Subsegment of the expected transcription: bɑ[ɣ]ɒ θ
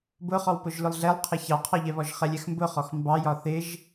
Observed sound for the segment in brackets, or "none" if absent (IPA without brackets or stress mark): j